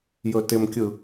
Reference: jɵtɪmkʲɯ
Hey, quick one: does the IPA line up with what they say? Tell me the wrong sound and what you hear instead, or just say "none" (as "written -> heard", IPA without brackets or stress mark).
none